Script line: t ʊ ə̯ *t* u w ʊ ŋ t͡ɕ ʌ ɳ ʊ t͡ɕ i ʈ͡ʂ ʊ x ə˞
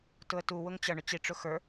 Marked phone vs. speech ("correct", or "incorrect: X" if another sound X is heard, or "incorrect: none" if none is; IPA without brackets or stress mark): correct